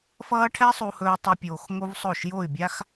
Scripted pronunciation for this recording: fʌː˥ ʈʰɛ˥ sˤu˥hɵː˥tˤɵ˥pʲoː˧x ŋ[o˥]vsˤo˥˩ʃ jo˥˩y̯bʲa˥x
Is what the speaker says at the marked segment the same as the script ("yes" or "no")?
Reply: yes